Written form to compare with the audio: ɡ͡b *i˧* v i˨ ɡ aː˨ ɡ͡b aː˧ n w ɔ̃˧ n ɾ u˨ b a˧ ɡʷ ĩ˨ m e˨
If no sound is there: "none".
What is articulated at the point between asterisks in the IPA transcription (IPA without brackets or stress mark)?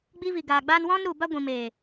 i˧